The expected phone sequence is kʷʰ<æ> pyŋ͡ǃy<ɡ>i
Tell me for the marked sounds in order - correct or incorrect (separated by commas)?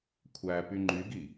correct, correct